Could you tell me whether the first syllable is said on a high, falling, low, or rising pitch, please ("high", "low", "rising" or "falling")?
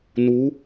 rising